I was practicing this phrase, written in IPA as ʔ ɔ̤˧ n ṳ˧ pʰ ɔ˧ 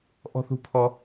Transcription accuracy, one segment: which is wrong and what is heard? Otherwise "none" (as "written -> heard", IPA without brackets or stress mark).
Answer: n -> θ